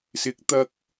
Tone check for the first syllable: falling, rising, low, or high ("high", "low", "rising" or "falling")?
rising